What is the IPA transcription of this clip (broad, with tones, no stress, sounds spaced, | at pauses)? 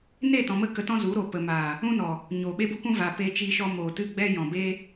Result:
n e˦˨ t ɔ̃˨ m ə˦˨ k ə˧ t ɔ̃˦ z u˨˦ ɾ o˨ p ə˨ m aː˨ | ũ˧ n ɔ˨ | ɲ oː˨ ɓ e˦ b u˦ k ũ˦ v a˨ p e˧ t͡ʃ iː˧ ʃ ɔ˧ m oː˨ t ɨ˦˨ ɡ͡b ɛ˦ j ɔ̃˨ b e˦